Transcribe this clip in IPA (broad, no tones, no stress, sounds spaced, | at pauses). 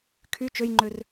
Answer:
kʰ y t͡ʃ ø j ŋ͡ǃ ø r